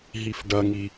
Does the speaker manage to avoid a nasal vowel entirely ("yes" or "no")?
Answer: yes